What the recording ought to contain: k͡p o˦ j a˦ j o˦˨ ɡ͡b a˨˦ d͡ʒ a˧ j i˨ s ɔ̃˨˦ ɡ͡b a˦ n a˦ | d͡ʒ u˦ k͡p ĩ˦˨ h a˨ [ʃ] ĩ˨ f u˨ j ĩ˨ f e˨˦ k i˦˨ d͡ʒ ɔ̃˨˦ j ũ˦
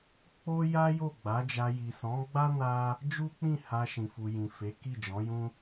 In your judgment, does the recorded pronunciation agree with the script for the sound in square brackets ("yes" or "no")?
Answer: yes